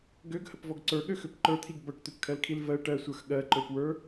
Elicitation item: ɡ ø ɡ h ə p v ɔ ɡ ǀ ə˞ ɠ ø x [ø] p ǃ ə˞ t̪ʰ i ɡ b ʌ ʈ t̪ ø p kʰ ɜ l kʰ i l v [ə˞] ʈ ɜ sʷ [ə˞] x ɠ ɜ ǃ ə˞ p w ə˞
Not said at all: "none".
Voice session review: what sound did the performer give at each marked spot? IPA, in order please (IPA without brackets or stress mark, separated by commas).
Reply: ø, ɜ, ə˞